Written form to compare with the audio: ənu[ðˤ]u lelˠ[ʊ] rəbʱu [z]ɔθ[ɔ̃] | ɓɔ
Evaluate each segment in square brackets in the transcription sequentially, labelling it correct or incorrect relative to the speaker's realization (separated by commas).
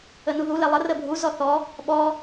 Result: incorrect, incorrect, correct, incorrect